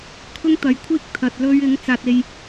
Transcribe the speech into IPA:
kʰ ʊ˥ ŋ t̪ ɐ˨˥ j kʷʰ iː˥ k̚ t̪ʰ ɐ˧ t̚ l ɵ˥ ɥ ɪ˨˥ ŋ t͡s aː˧ t̚ e˧ j

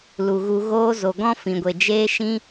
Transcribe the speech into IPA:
l u˨ ɣ u˧ ɣ oː˦ z o˨ ɡ ɔ̃˦ f ĩ˨ ɡʷ e˨ d͡ʒ eː˦ ʃ ĩ˦

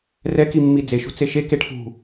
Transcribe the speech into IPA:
r ɛ k i mː i d͡z e ʃ ṳ t͡s e ʃ e k e ʈʰ ṳ

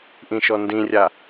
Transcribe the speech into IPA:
ʔ ĩ ʃ ɔ n d ĩ rʲ a

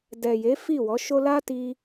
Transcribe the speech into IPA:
d ɛ˨ j e˨˦ f i˦˨ w ɔ˨˦ ʃ o˦ l a˦ t i˧

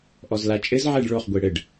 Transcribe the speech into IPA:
ʔ ɔ z l a t͡ʃʼ ɘ z ʕ ɛ ɖ ɭ o χ ɡʷ e ɽ ɘ ɖ

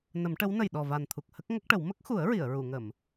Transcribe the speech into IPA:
n ə˨˩˦ m ʈ ə˧˥ w n ə˨˩ j ɗ ɔ˨˩ v a˨˩ n t̪ʰ u˨˩ k̚ h ə˦˥ k̚ ŋ ə˦˥ k̚ ʈ ə˨˩˦ w m ə˦˥ k̚ x u˨˩˦ ə̯ ɹ i˨˩˨ ə̯ ɹ u˨˩˨ ŋ ə˨˩˨ m

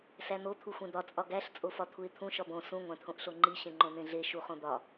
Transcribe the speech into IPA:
s æ n̪ o t̪ʰ u xʷ ẽ d̪ ɒ t͡sʼ ɒ ɡ æ ɬ t͡sʼ o f ɒ t̪ʰ u ɪ̯ t̪ʰ ũ ʃ ɒ b õ s ũ ŋʷ æ̃ t̪ʰ õ ʔ ɬ o ŋ͡ǃ i ɕ ẽ ŋ͡ǃ õ n̪ ẽ ɮ e ʃ u χ õ d̪ ɒ

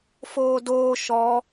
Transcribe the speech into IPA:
f oː d oː ʃ ɔ

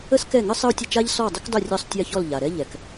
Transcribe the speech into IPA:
ə˥ s k ɛ˥˩ ŋ ə˥ sˤ ə˥ u̯ tʲ ə˥˩ t͡ʃ a˥ ʎ s ɔ˥˩ dˤ ə˥ k dˤ ʊ˥˩ rʲ ɔ˥˩ sˤ tʲ a˥˩ ç ɔ˥˩ l ʎ a˩ ɾ ɛ˥ ʎ ɛ˩ k

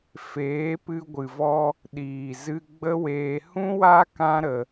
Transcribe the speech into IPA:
f eː˨˦ p ɨ˧ ɡʷ ɨ˨ v ɔ˧ | ɗ iː˨ z ɨ˧ ɡ͡b ə˦ w eː˧ h ũ˦ w a˦ k ã˦ ɾ ə˧

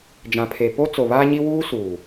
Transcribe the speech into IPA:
d͡ʒ ã˨ pʰ e˨ p o˦ t͡s o˨ β aː˦ ɲ i˦ w uː˦ s uː˨

